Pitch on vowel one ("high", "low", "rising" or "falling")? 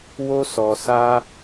high